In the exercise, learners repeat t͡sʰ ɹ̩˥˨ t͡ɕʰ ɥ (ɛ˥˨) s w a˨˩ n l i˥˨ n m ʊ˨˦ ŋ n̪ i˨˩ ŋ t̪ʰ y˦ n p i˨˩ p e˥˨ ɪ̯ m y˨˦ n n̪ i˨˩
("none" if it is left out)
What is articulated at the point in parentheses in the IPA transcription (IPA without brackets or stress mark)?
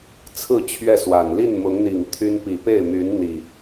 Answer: ɛ˥˨